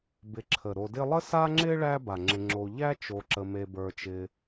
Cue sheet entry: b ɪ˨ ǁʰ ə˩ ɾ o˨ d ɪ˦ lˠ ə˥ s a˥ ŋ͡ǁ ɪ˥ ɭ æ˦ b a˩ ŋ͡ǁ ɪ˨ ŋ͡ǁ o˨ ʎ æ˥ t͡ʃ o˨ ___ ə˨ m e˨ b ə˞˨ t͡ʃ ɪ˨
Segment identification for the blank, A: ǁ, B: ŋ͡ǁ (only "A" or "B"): A